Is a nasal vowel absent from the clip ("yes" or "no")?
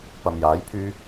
yes